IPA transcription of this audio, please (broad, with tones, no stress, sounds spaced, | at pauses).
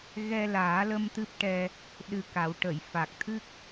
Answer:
ɣ ɛ˧ l aː˨˩˦ l ə˧ m t̪ ɨ˦˥ p̚ ʈ ɛ˧ | ɗ ɨ˧ k a˨˩˦ w ʈ ə˨˩˨ j f a˨˩ k̚ t̪ʰ ɨ˦˥ k̚